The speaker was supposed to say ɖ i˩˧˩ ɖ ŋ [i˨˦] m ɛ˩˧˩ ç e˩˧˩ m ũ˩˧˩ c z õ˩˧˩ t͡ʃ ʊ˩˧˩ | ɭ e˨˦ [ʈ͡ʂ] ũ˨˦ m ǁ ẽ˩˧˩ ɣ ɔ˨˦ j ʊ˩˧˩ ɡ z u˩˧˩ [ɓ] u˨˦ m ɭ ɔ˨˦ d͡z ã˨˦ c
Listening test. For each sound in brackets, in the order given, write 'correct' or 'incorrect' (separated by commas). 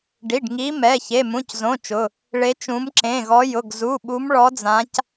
correct, incorrect, correct